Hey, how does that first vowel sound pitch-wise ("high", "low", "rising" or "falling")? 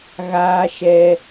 high